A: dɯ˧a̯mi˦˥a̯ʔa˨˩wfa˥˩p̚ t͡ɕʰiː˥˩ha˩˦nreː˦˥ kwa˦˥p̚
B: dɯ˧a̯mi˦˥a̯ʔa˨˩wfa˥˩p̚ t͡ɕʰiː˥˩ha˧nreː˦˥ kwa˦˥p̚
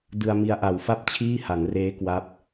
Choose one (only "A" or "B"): A